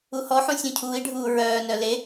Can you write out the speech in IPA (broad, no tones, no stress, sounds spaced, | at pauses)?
u h ɔ ħ ũ sʲ ũ cʰ uː i̯ ɖʱ uː ɹ œː n œ l e